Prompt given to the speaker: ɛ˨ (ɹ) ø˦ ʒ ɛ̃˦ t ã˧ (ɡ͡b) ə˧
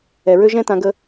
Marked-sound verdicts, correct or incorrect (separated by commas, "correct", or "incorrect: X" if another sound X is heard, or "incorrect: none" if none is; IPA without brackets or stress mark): correct, incorrect: ɡ